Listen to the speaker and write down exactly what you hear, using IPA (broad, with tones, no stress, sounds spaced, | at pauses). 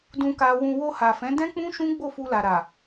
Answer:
d ũ˧ k a˧ w ũ˧ w o˧ h a˨ f ɛ̃˨˦ d ɛ̃˦ k͡p ũ˦ ʃ ũ˦ ɡ͡b o˦˨ f u˧ l a˨ ɾ a˨